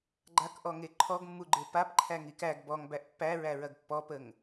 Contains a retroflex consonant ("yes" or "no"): no